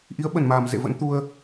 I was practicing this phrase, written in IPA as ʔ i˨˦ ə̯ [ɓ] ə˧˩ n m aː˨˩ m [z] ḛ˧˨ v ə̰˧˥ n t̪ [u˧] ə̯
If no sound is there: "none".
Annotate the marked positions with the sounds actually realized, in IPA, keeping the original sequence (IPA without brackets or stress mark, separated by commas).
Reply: ɓ, z, u˧